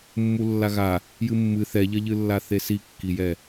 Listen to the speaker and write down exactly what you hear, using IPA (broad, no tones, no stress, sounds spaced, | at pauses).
mː u lː a ɣ a | j ɨ mː ɨ θ ɛ ʎ ɐ ʎ ɨ lː a θ e s i kː i j ɛ